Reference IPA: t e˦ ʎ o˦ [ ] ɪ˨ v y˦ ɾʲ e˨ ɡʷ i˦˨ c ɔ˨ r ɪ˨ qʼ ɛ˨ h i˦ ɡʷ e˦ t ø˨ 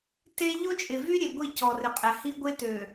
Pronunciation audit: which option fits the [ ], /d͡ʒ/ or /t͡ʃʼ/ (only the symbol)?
t͡ʃʼ